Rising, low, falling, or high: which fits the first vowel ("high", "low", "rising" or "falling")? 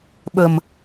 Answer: low